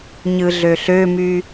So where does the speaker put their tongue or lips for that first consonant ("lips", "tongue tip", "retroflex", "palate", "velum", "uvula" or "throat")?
palate